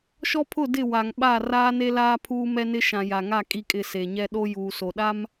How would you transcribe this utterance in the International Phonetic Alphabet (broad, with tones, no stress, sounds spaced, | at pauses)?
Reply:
ʃ ɔ˦ pʰ ʊ˦˨ d ɪ˦˨ w a˨ ŋ ɓ a˦˨ r aː˦ n e˦ l aː˦ pʰ uː˦ m ɛ˦ n ɪ˦ ʃ ã˨ j a˨ ŋ a˦˨ kʼ i˦ kʼ ɪ˦˨ s e˨ ɲ ɛ˦ ɗ o˦ j uː˨ s o˨ ɗ a˦ m